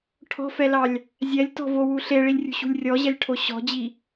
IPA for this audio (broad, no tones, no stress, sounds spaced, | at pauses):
ʈʰ ɔ̤ f ɛ l ɑ lʲ | zʲ ɛ lʲ t ɔ̤ v o w u ɬ e ɭ i lʲ rʲ ṳ ɕ ṳ lʲ rʲ ɔ ʑ ɛ lʲ ʈʰ o ɕ ɔ̤ d͡ʑ i